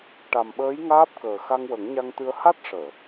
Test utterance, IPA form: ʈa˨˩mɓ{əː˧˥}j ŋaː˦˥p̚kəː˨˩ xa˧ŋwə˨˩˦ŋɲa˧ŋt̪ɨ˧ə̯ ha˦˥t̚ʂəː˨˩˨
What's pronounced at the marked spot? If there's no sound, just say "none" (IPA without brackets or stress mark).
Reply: əː˧˥